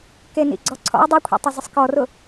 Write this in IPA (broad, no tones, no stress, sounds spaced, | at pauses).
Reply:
k e n ḭ ɡ͡ǀ ɔ ǀʰ ɔ̰ ə̯ dˤ i kʷʰ ḭ tˤ ɛ z ɪ sˤ k ɔ r ʊ